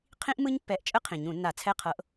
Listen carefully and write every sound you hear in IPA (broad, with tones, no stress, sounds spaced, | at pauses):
qʰ ĩ˦˥ ʔ m ɯ˦˥ ɲ pː ɛ˨˦ ʔ t͡ʃʼ ə˦˥ qʰ ĩ˨˩ ɲ ũ˧˩˧ nː a˧˩˧ t͡sʰ ɛ˧˥˧ qʰ ɤ˨˦ ʔ